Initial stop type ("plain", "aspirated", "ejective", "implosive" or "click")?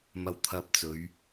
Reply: aspirated